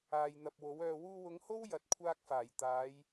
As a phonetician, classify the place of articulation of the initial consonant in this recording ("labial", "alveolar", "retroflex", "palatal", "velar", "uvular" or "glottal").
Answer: palatal